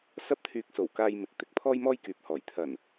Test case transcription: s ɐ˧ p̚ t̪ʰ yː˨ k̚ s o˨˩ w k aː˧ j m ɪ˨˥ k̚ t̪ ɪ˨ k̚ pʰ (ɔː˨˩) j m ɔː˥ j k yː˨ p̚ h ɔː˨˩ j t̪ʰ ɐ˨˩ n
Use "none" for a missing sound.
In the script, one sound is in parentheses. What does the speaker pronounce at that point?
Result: ɔː˥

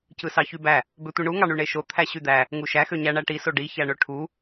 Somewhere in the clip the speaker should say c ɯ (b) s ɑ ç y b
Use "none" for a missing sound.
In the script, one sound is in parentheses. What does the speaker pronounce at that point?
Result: none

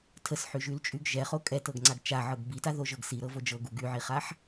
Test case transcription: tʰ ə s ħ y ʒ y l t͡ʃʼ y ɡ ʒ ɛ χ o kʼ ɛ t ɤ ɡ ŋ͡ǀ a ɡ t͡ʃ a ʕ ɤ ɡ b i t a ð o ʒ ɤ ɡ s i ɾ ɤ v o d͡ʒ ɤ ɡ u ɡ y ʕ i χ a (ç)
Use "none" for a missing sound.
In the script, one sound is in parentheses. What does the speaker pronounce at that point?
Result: ħ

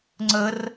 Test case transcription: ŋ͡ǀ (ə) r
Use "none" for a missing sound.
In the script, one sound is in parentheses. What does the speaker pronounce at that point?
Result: ə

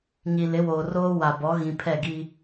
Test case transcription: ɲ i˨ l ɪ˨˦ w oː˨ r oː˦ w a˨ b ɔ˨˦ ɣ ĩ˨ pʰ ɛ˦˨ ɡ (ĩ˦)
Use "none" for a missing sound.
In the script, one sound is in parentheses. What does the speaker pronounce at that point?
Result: i˦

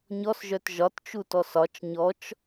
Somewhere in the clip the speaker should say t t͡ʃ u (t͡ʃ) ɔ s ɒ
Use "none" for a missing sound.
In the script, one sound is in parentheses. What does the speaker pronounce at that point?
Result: t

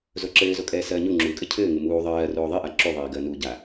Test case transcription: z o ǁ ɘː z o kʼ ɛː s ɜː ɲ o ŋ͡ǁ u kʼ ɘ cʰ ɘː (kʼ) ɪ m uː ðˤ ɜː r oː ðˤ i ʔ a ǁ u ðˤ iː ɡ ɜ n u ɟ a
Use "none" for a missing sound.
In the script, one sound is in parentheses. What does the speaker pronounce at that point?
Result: ŋ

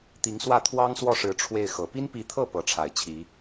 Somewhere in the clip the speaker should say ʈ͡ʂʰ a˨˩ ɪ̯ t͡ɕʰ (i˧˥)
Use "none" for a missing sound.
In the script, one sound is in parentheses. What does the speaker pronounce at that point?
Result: i˧˥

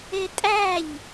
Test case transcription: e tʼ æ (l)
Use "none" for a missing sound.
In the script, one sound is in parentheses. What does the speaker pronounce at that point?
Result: ʎ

